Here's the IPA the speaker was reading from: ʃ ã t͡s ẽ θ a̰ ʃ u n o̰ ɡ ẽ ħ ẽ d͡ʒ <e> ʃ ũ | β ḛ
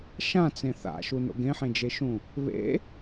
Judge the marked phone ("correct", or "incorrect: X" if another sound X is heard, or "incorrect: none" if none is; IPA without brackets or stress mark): correct